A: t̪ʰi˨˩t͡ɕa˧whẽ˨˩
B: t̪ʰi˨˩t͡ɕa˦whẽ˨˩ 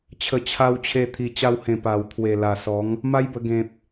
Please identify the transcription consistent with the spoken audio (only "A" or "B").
A